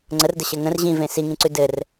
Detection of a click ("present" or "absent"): present